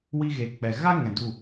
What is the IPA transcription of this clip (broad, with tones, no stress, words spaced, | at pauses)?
wi˧ɣeː˨k͡pɛ˨ ɣa˦ŋɛ̃˨ du˦˨